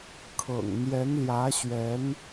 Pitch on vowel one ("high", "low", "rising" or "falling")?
low